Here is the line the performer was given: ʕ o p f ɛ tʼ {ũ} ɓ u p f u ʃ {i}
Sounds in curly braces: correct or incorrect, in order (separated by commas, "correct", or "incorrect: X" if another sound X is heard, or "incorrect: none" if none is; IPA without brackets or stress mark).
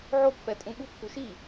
correct, correct